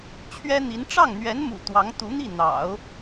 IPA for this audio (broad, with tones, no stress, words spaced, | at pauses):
t͡ɕʰɥɛ˥n̪i˧˥n ʈ͡ʂɑ˥˩ŋn̪ɥɛ˧˥nmṵ˨˩ t̪wɑ˧˥ŋt̪u˧˥n̪i˥˩ n̪ɑ̰˨˩˦ʊ̯